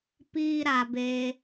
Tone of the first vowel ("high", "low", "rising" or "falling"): high